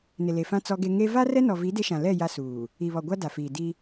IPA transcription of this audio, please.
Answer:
n ɪ˨ l e˨ f ã˦ t͡s ɔ˦ ɡ e˦ ŋ e˦ v a˦ r ɛ˦ n ɔ˨ v i˨˦ d e˦ ʃ ã˨ l ɛ˦˨ j a˦ s uː˨ | i˨ β ɔ˨ ɡʷ a˦ d a˨ f iː˨ d i˦

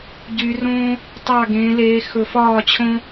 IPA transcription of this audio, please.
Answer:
ɟ y˨˦ r õː˦ | tˤ ɑ˦˨ ɡ ẽː˨˦ l eː˨˦ x ɵ˨˦ f ɒː˦˨ t͡ɕʰ õ˦

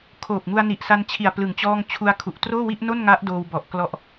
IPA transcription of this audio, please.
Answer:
kʰ oː˨˩ p̚ ŋ u˧ a̯ n i˨˩ ʔ s a˧ n t͡ɕʰ i˨˩ a̯ p l ɯ˩˦ ŋ t͡ɕ ɔː˥˩ ŋ t͡ɕʰ u˧ a̯ kʰ u˨˩ ʔ t r oː˥˩ w i˥˩ ʔ n o˥˩ n ŋ a˦˥ ʔ d oː˧ w b ɔ˨˩ ʔ k l ɔ˦˥ ʔ

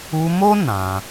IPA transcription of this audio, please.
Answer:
u˧ m o˦ n ã˧

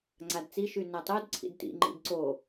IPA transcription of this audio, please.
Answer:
ŋ͡ǀ a d t͡s i ʃ y n a tˤ o d ǀʰ ḭ d t ḭ ŋ͡ǃ ḭ d ǀ o

